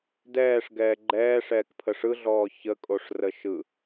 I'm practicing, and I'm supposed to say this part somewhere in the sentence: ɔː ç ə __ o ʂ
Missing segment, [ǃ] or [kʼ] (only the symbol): kʼ